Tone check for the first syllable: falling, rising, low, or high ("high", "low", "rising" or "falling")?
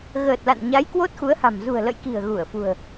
low